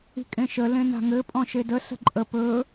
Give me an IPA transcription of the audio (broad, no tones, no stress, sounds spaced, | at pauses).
i̤ kʼ ẽ ʃ ə l ẽ n a̤ ŋ ɘ pʼ ɔ̃ ʃ e d ə s ə̤ ǃʼ ə p ɵ